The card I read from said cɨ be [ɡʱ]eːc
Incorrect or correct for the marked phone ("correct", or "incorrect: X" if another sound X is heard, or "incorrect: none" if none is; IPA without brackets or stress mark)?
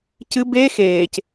incorrect: x